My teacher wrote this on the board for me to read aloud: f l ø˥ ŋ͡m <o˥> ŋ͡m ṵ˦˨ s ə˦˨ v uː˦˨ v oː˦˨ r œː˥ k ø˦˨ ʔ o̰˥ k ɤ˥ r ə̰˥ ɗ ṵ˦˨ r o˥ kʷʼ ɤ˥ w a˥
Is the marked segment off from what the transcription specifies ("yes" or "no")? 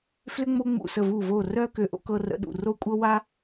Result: no